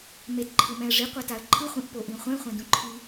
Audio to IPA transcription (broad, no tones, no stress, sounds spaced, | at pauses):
m e t ǃʰ ɯ m ɛ̃ ə̯ ʐ i qʷ a t a ə̯ ǃʰ ɯ χʷ ĩ ʔ p o ʔ ĩ χʷ ɛ̃ χʷ ɛ̃ d ũ ǃʰ i